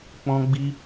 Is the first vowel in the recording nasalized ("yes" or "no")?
yes